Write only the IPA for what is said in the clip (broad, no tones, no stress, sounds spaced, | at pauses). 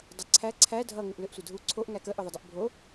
dˤ ʌ ǀʰ æ ǀʰ æ dʱ ʌ ŋ ʏ ʔ l ʏ ʔ sʷ ə dʱ u ǀʰ o ʔ ŋ æ k ə ʔ ʏ ðˤ ə dˤ ə ʔ bʱ o